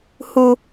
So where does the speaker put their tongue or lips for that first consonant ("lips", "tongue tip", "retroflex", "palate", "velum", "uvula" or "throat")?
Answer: throat